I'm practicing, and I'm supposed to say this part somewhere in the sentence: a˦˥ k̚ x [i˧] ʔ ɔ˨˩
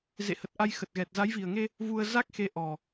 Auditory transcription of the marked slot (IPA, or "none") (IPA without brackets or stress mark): e˧